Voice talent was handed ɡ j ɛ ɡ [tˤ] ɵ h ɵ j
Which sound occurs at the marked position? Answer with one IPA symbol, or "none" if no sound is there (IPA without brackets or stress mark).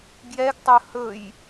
tˤ